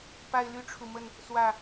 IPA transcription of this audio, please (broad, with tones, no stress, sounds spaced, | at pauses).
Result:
p a˦ ɪ̯ l y˦ ʈ͡ʂʰ u˨ m ə˥˨ n | s w ä˥˨